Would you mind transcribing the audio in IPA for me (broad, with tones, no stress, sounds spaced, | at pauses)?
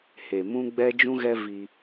h e˨ m ũ˦ ɡ͡b ɛ˦ d͡ʒ ũ˦ ɣ ɛ˦ v i˦